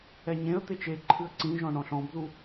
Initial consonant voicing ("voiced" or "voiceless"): voiced